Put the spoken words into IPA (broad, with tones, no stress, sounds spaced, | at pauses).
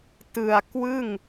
t ɯ˨˩ a̯ k w ɯ˥˩ ŋ